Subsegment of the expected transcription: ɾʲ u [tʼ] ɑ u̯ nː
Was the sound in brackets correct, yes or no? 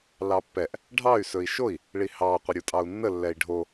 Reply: yes